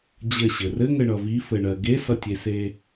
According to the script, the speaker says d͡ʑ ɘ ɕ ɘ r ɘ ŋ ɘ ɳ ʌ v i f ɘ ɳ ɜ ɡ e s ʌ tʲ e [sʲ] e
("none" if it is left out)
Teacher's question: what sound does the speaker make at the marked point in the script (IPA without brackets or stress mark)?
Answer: s